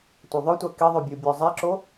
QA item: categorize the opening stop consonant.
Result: plain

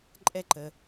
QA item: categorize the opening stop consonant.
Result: click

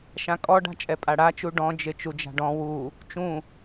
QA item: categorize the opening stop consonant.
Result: ejective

